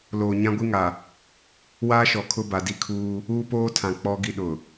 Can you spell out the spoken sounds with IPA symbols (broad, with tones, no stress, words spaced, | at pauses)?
loː˨ɲã˦ɡʷi˦ŋa˨ | waː˦ʃɔ˨ kʰʊ˦ba˨di˦kʰuː˦ | uː˦poː˦tʰã˨ k͡pɔ˦ɡi˦ɗʊ˨